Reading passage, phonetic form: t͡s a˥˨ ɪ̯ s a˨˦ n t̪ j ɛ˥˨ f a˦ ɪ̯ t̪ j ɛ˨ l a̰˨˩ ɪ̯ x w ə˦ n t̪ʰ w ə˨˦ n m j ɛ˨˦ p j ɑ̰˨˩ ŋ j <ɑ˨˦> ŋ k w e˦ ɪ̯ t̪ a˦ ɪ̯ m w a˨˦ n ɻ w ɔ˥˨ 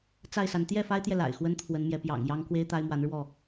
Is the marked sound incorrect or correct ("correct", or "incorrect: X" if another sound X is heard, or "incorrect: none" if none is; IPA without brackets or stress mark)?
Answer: incorrect: ɑ˦